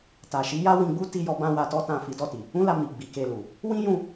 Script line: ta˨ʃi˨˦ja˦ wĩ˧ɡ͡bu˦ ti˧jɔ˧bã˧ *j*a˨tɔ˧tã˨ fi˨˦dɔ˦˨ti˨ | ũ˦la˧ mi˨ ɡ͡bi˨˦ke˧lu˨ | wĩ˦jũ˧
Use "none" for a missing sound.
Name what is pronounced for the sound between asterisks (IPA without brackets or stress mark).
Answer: w